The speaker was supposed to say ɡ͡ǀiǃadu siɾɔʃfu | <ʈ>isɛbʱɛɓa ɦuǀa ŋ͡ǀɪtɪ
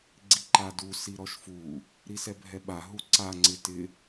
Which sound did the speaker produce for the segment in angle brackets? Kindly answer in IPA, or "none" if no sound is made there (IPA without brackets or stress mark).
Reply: ɾ